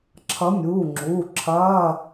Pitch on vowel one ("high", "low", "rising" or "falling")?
rising